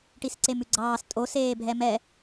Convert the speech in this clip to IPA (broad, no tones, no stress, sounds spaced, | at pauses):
ʈ i s ǀ e m ʉ ɡ͡ǀ ɑː s tʼ o s eː bʱ ɛ m ɛ